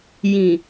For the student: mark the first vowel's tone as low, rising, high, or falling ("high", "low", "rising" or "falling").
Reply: low